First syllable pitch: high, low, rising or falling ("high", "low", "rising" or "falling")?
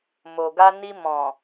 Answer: low